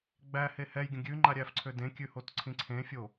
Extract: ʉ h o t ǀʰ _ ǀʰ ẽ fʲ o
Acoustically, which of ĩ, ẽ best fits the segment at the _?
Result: ĩ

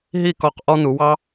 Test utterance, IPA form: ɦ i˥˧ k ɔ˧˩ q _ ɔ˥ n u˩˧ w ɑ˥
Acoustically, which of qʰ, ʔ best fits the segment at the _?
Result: ʔ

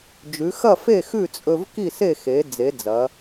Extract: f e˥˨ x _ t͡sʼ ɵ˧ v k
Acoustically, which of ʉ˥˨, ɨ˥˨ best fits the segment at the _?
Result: ʉ˥˨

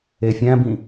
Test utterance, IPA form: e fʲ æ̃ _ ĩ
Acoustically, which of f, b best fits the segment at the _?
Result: b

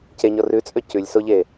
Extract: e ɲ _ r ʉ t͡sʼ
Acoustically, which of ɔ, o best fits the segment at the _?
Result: ɔ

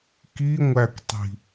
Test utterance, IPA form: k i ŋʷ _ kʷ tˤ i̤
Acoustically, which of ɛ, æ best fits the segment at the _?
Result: æ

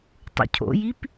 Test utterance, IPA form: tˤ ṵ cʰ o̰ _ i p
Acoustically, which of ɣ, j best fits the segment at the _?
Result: j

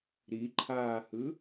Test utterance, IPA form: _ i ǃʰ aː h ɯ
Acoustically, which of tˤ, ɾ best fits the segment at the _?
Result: ɾ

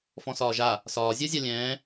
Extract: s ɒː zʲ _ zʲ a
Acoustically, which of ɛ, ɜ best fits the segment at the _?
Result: ɜ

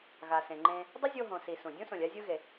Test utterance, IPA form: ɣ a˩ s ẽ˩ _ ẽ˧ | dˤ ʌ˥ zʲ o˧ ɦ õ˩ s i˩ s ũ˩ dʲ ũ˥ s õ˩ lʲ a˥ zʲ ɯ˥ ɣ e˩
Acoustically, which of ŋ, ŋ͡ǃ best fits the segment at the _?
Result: ŋ͡ǃ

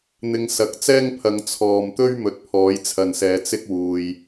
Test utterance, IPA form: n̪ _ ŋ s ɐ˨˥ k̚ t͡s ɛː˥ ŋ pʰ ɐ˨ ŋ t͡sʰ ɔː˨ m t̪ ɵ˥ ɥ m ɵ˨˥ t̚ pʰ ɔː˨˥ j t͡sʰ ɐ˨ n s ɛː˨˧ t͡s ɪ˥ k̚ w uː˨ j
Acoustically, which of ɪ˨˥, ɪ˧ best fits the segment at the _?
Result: ɪ˧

